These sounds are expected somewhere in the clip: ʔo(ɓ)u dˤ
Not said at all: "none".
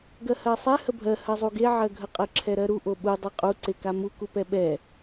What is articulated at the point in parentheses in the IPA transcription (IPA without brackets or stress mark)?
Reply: ɓ